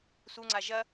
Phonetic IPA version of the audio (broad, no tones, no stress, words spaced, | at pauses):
suŋ͡ǀa ʒɐ